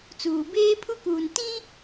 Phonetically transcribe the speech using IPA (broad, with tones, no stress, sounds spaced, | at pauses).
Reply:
t͡s uː˨ b eː˦ pʰ u˦ k uː˨ n t ĩ˦